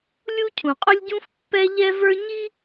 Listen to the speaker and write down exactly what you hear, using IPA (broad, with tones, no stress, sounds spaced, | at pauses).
lʲ u˥ cʰ ũ˩ qʼ ʊ˥ lʲ ɟ ũ˥ f pː ɛ˥ ʎ ɛ˥ v ə˞˥ ɲ i˥